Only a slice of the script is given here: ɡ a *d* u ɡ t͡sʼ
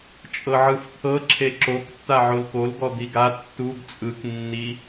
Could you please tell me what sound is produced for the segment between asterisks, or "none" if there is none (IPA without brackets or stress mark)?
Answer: tː